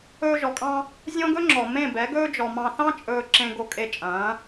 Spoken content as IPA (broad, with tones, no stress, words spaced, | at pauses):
ɵː˧ʒɔ˨kʼɑ̃˧ | zʲõ˦ɡɵ˦ŋ͡ǁɔ˨ mẽ˦˨bɛ˨˦ ɡɵː˦d͡ʒɔ˨mɑ̃˧ θɑ̃˦ t͡ʃʼɵː˧ǁẽ˧ ɡo˧ kʼe˧t͡ʃʼɐ̃ː˨˦